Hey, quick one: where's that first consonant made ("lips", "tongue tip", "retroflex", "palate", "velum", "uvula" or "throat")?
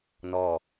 tongue tip